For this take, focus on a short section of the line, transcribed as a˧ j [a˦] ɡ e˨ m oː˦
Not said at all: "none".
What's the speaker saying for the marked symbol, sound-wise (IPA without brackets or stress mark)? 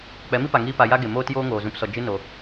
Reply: a˦